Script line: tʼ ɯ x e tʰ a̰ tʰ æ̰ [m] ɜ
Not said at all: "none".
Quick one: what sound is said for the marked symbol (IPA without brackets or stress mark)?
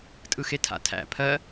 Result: pʰ